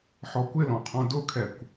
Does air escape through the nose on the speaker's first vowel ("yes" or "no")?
no